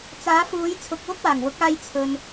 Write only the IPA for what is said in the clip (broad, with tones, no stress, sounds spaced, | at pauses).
t͡s aː˨˥ f uː˨˥ j t͡sʰ ʊ˧ k̚ w ʊ˥ k̚ w aː˨˩ ŋ w ʊ˨˥ k̚ aː˧ j t͡sʰ ɵ˨ n